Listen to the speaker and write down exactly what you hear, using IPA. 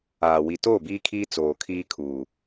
aː˨ wi˨toː˦˨biː˦kʰiː˦ t͡soː˨kʰiː˦kʰuː˨

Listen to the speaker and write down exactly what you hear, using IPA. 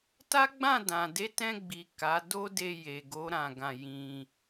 ta˦ɡ͡bã˦˨dã˨ de˨˦tɛ̃˧ɡ͡bi˨ ka˨˦do˦ de˧je˨ɡo˨˦ ɾã˦˨ɡã˧ jĩ˧

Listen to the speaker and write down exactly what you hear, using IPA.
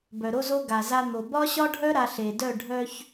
bœ˨ɾo˦zo˦ ɡa˨za˦n̪o˨ bɒ˦ɕɒ˦ɖʱœ˦ ɾa˦ɬe˨ dœ˦˨ɖʱœ˦ç

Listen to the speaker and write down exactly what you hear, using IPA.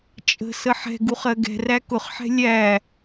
t͡ʃʼə̤ səħɛ̤ɡuχ ɜɡɛ̤ræ kʊχħɛ̤ lʲæ

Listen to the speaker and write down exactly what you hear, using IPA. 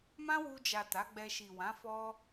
mã˦wu˧d͡ʒa˨ ta˨˦ɡ͡bɛ˧ ʃi˨wã˨˦ fɔ˧

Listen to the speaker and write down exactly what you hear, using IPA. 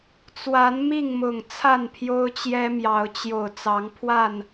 t͡swa˨˦n mi˥˨ŋmʊ˨˩ŋ t͡sʰa˥˨npʰjo˦ʊ̯t͡ɕjɛ˦mjɑ˨˦ʊ̯ t͡ɕjo˨˩ʊ̯ t͡sɑ˨˦ŋpʰwa˥˨n

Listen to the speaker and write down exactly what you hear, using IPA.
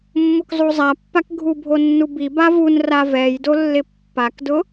mːʊkzˤuzˤapːak ɡʱubʱonːubi bavun ravɛjdolːɪ pːakdʊ

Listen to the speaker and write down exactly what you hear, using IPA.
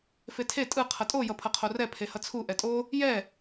fetʰe tʼɯ qʰʌtʼo jʌpʰʌqʰorɛ pʰehʌt͡sʰu ʔɛtʼo | jɛ

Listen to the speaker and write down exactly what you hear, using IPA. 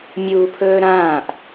mʲuːpʰɵːɾãːʔ

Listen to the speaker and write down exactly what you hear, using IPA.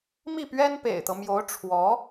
mi˥˩pɥɛ˥n pḛ˨˩ɪ̯t̪ɤ˦ mjo˧˥ʊ̯ ʈ͡ʂʰwɔ˧˥

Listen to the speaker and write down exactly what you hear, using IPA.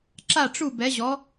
ǁa˥˨ʈ͡ʂu˥˨ bɛ˨˥ʑɔ˨˥

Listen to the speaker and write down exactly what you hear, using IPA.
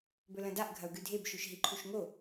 bɵlɐ̃daʔ ɡʱɐu̯ɡʉdʱeb ʃʉʃɦiǃʰuʃŋo

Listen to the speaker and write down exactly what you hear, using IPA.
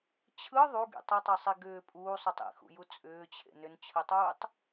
t͡ɕʰɯ ðˤuɡḭ tˤɯtˤɯsˤi ɡʏː pʼuːsˤutˤ ḭxṵju t͡sʼʏːt͡ɕʰḛ nʏnt͡ɕʰɯtˤuːtˤ

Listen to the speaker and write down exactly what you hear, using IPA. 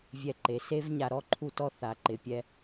vʲɛ˧ǃe˨se˦vɲa˧ ɾɔ˦ǃʰu˦tɔ˦ θa˨ ǃɪ˨ pʲɛ˧

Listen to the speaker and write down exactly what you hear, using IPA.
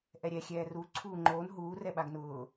ʔɛɾʲɛxʲɛː ru ǀʰuːŋ͡ǃoːn ɦuː rɛɓaɡnʊː

